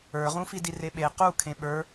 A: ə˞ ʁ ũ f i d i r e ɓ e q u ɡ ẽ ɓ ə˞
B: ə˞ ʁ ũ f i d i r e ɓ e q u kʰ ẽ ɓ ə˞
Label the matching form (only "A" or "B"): B